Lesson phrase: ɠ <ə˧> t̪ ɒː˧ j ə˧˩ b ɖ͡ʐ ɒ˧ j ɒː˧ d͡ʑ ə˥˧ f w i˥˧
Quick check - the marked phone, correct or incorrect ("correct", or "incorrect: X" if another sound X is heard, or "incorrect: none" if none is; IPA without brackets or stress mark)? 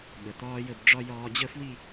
incorrect: ə˩